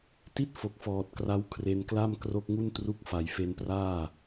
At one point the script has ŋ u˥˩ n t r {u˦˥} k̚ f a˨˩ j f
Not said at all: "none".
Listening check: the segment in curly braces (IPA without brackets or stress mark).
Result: u˦˥